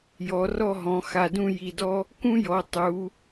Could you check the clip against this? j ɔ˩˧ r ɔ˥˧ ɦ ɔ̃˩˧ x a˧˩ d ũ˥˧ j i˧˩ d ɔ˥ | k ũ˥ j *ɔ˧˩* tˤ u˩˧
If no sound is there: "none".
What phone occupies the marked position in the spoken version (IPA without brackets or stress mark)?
ɔ˩˧